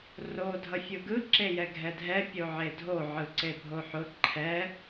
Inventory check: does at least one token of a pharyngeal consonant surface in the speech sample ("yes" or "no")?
yes